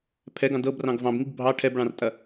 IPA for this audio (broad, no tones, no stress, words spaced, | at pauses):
pʰɛɡɑ̃d ɤbrɑ̃ɡ vɑ̃bŋiɡ bʱɑ ʈʰɛbɭɑ̃rtʼɐ